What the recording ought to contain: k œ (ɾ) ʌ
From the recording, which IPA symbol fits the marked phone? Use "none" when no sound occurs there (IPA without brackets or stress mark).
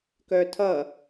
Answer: tʰ